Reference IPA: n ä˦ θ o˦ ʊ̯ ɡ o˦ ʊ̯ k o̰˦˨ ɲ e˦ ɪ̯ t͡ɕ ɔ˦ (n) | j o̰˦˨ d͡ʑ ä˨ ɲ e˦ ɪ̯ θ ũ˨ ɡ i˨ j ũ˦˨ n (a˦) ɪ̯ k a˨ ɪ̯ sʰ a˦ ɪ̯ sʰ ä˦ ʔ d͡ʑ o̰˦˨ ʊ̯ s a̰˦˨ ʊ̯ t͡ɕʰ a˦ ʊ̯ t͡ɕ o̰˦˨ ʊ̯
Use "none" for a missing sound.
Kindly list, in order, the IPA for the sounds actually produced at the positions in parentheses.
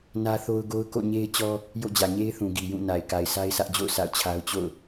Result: none, a˨

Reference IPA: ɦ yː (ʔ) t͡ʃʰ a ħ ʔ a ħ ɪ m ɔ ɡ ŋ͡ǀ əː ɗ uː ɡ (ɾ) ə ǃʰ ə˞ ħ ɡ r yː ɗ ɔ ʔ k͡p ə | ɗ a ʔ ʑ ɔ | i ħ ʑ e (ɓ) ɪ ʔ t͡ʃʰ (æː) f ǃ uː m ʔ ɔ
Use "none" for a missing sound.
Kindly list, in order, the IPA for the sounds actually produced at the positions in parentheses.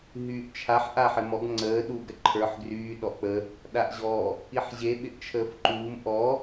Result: ʔ, ɾ, ɓ, əː

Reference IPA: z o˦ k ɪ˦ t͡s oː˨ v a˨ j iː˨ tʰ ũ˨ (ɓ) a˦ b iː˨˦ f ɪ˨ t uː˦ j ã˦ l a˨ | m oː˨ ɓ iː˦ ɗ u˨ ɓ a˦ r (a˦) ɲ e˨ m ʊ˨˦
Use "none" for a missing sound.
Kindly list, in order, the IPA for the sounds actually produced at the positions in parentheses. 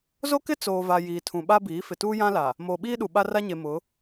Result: ɓ, a˦

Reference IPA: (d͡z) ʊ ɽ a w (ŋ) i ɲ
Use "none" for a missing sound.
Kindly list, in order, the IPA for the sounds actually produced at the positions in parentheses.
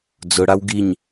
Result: d͡z, ɡ

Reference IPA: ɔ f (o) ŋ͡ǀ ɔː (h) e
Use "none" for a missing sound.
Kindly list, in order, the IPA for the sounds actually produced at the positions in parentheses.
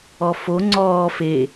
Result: o, f

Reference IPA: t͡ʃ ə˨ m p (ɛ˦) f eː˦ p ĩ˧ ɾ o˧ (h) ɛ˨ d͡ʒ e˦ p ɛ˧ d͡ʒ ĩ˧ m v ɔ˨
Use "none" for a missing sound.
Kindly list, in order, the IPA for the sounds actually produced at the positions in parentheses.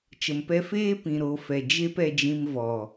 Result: ɛ˧, f

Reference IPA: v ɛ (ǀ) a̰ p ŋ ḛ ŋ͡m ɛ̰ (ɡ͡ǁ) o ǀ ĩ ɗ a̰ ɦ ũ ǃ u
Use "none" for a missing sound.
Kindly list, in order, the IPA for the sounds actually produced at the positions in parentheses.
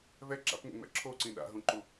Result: ǁ, ǁʰ

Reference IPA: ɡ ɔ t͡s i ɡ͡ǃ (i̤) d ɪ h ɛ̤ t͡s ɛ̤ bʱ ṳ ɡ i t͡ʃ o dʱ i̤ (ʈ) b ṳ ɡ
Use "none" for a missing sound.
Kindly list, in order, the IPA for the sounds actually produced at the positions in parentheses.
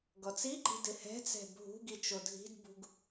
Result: i̤, d

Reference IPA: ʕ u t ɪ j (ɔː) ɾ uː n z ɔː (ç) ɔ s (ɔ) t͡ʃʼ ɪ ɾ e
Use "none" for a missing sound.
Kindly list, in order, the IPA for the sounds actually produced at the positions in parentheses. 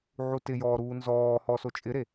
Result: ɔː, h, o

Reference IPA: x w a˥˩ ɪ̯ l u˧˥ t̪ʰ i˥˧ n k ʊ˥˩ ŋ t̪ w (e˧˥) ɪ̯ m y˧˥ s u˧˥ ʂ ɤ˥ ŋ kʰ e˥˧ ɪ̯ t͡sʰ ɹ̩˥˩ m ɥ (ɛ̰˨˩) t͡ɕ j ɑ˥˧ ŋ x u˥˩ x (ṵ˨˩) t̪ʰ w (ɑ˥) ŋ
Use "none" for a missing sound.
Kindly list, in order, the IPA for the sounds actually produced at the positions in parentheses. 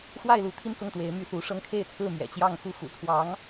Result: e˧˥, ɛ̰˨˩, ṵ˨˩, ɑ˧˥

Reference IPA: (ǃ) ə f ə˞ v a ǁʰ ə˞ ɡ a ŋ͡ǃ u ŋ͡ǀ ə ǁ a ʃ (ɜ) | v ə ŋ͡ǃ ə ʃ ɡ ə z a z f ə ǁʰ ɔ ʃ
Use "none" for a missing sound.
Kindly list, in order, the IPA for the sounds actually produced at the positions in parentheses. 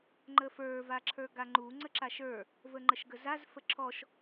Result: ŋ͡ǃ, ə˞

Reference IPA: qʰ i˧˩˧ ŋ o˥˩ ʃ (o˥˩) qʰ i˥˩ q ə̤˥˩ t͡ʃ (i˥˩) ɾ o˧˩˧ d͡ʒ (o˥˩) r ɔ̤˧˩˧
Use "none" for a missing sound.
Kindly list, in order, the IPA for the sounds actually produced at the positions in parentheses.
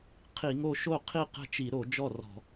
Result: o˥˩, i˧˩˧, ɔ˥˩

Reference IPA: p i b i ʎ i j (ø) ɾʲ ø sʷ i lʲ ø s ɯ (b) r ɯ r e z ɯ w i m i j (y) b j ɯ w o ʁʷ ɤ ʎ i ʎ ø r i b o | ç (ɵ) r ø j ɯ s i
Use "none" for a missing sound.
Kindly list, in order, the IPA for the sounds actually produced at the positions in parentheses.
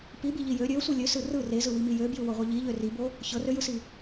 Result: ø, none, ø, ɤ

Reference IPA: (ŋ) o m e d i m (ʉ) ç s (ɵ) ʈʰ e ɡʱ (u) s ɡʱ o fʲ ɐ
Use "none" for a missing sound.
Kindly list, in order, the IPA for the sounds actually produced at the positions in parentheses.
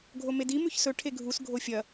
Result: ɡʱ, ʉ, ɵ, u

